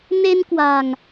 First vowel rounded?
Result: no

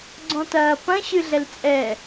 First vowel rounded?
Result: yes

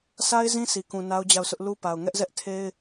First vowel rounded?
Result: no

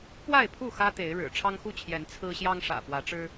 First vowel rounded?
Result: no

